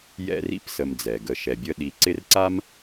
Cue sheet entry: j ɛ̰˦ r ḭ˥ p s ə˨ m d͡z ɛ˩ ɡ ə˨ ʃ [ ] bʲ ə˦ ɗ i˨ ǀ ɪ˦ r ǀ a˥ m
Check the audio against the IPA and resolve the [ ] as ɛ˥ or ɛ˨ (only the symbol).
ɛ˨